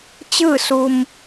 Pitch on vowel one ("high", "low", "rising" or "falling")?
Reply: falling